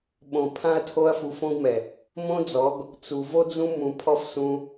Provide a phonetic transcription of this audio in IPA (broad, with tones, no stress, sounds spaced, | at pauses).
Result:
ɓ õ˨ pʰ ã˧ ɐ̯ tʰ o˧ ɐ̯ f u˧ f õ˦ ɡ m ɛ˨ | m õ˦ d͡z ɔ˨˦ ɡ | t͡s u˨ v o˦ d͡z ũ˦ m ũ˧ pʰ ɔ˦ f s ũ˧